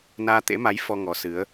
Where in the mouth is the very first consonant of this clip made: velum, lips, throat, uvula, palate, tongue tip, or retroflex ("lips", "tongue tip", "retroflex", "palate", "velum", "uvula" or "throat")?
tongue tip